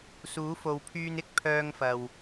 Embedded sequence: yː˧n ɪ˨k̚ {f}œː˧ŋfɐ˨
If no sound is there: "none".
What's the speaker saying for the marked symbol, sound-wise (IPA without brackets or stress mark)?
pʰ